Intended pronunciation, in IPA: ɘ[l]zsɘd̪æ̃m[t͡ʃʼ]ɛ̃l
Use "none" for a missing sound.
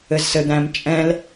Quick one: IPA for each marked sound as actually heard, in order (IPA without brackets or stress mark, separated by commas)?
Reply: none, t͡ʃʼ